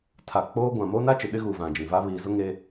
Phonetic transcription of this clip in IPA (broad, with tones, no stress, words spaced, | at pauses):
tʰa˨k͡poː˦ɡʷã˨ moː˦na˦t͡ʃɪ˨ ɗɪ˦ɣu˨ vã˨d͡ʒĩ˨va˦ βiː˨zʊ˦ ŋe˦